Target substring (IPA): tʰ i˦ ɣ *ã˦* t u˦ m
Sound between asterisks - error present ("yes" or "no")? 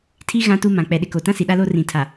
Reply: no